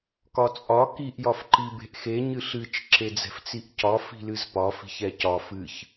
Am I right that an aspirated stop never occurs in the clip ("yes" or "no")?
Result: yes